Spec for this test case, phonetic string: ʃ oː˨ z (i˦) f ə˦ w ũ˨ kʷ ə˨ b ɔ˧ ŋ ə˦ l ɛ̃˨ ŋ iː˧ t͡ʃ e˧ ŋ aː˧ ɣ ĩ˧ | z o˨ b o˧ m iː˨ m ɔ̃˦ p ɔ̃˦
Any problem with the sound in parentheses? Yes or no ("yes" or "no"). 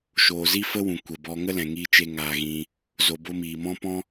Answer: no